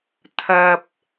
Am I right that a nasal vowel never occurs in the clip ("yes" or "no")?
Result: yes